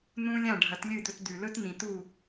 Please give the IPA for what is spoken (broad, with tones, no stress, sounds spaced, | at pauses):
n ũ˧ lʲ ã˥˩ ɖʱ ɐ˩˥ t lʲ ɨ˥˩ d̪ ɵ˧ t d̪ ʉ˩ l ɵ˥ t n ĩ˩ t u˥˩